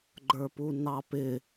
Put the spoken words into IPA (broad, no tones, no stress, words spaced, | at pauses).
ɡ͡ǃə˞punɑpɪ